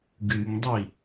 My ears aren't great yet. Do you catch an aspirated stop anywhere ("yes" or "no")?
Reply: no